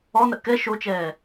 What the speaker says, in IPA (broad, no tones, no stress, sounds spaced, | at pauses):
ɔ n ə ʔ k ɛ ʃ o t͡ʃ ɛː